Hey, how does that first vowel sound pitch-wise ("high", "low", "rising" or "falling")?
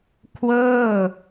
falling